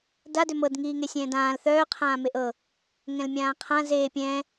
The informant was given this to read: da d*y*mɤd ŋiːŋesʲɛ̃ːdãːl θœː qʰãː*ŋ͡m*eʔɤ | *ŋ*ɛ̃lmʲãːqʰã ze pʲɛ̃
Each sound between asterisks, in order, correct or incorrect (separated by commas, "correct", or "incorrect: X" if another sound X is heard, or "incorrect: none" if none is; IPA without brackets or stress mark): incorrect: ø, incorrect: m, correct